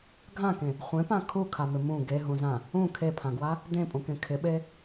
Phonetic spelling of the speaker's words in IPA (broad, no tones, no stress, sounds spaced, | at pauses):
ɡʱ ã k ẽ | χʷ ẽ p ã kʰ u kʰ a m ɪ m ũ ɡ e ɦ ũ z ã | ũ kʰ e pʰ ã ɡ w a | d ẽ pʼ ũ k ẽ kʰ ɪ ɓ e